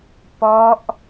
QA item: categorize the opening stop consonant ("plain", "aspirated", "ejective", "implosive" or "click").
plain